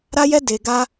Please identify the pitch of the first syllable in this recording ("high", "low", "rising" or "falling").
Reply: high